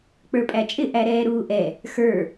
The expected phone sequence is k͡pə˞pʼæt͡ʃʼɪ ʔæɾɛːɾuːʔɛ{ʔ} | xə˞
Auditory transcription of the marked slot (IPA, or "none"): none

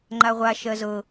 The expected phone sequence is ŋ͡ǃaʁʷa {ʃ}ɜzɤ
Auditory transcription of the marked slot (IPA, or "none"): ʃ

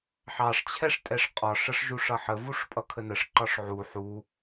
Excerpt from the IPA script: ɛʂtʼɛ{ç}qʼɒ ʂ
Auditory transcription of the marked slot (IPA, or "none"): ʂ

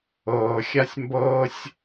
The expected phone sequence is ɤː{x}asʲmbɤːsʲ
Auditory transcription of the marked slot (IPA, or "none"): xʲ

